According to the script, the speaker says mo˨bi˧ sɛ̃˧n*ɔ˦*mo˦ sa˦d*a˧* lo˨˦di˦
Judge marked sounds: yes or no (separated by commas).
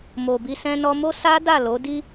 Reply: no, no